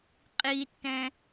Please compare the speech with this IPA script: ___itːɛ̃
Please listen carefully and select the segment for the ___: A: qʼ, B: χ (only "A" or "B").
A